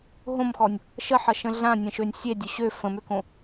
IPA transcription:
ɦõmxɔnʲ | ʃəħʌʃə̃ ɮãnʲə̃ʃønʲ sʲedʲɵ ɕø fə̃møkõ

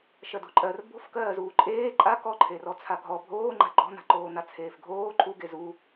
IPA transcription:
ʃɜdo̤ǃʼɜr bo̤fkɜːzuː ǃʼeː ǃʼa kɔǃʰerɔ t͡sʰaɡʱɔ bʱoːŋ͡ǃa̤ ɡ͡ǃɔ̤n̪a̤ǃoːn̪a t͡sʰeːfɡʱoː ǃʰuɡe zu

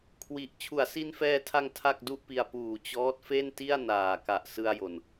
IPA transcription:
kʰwi˨˩ʔ t͡ɕʰu˩˦a̯si˧nfɛː˧tʰa˧ŋ tʰa˥˩k̚du˥˩ʔpi˧a̯ puː˨˩t͡ɕɔː˦˥t̚ fe˥˩nti˥˩a̯ naː˨˩ka˨˩ʔsɯ˧a̯ jo˨˩n

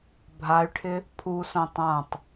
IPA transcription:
bʱay̯ʈʰɪ | pʰusõ tˤãtˤ

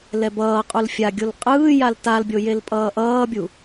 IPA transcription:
lɛbʌːqʼul fʲaɡʲol qʼɯː jaltalbʲo jelpʼʌːʔʌːbʲu

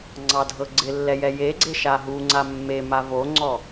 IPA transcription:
ŋ͡ǀɑdʱɤɡ͡ǀɪlːɛ jɛjeɡ͡ǀe ʃaɦuŋ͡ǀa mːe mavoŋ͡ǀɔ

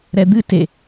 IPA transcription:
ɾɛd̪ɨ te

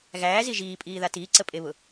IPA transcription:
ɣæːzi ʒiːpʼiːða tiːǀəpʼeβʊ

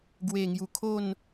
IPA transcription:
ɡwe˨˩ŋju˨˩ kʰo˥˧n

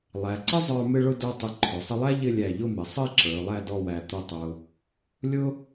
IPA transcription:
lˠæ˩˧ǀə˥zˤə˞˧ mɪ˥ɭʊ˥də˞˥˧ tˤɪ˧ǃʰʊ˩˧sˤɪ˥ lˠæ˥ ʎɪ˥˧ lʲæ˧˩ʎʊ˥˧mɪ˩˧sˤə˥e̯ ǁə˞˩˧lˠæ˥˧ dɔ˥˧wæ˧˩t̪ʊ˥˧tˤʊ˧ | lʲʊ˥

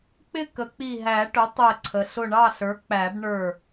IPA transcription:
k͡pɪ˥˩kə˨˩˦k͡pi˧˩ ɦæ˨˩˦ʈʊ˩˥ tˤɛ˧˩ ǀʰə˩ ɬʊ˧˩ɳɑ˥˩ɬə˞˩˥ k͡pæ˨˩˦bɳə˞˧˩

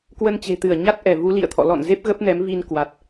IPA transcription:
kwə˧nt͡ɕe̤˨˩t̪ɨ˧˩ə̯ ɲa˦˥t̚ʔɛ˧˩vu˨˦ lḭ˧˨ə̯t̪ʰɔ̰˧˨ lɔ̰˧˨nze˦˥p̚ ɣə˦˥p̚nɛ˨˦mvi˧n kwa˨˩t̚

